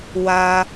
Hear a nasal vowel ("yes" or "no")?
no